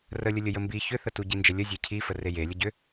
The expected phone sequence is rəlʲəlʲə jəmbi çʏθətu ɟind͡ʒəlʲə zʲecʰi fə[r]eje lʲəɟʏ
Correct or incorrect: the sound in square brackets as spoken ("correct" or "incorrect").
correct